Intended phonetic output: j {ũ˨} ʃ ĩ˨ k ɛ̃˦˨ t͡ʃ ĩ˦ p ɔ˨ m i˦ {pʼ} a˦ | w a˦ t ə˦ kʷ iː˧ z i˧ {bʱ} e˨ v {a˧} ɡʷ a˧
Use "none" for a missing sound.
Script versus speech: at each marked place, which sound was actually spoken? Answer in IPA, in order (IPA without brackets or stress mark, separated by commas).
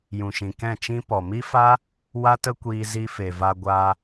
ũ˨, f, f, a˧